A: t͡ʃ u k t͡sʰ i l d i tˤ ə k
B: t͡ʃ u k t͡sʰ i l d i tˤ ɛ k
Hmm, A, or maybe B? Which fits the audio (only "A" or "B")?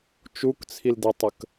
A